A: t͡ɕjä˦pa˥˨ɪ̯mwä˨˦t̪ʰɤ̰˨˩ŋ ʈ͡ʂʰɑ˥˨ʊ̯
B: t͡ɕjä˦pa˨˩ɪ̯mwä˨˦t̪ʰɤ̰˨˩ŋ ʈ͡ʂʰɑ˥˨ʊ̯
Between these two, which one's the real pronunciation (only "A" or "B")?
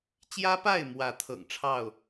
A